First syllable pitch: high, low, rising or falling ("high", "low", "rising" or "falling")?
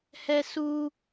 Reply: high